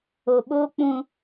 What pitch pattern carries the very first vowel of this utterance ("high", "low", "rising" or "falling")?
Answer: low